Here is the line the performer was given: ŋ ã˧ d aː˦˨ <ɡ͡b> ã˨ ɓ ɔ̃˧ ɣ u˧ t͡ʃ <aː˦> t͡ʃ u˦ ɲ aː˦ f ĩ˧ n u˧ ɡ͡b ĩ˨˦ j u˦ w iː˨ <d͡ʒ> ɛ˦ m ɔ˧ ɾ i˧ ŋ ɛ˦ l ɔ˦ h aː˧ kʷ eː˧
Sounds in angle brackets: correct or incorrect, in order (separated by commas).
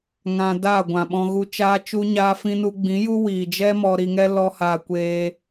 incorrect, correct, correct